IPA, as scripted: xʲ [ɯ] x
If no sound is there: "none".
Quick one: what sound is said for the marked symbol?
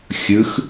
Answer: ɯ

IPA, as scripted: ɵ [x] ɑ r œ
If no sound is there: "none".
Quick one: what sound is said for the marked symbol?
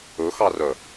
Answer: x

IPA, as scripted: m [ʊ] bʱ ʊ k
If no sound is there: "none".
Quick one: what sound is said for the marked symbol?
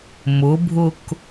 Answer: ʊ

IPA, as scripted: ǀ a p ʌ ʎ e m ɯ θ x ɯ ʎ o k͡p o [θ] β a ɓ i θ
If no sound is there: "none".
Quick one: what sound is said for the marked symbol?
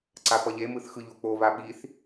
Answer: none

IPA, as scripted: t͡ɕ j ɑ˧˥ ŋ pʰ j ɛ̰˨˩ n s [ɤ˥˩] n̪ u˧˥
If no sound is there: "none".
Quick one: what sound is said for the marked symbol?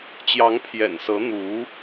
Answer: ɤ˧˥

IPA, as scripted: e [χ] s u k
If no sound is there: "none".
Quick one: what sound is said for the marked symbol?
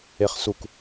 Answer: χ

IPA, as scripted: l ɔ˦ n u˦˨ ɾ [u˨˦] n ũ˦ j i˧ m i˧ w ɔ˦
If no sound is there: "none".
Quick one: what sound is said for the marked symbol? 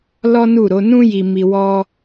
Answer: o˨˦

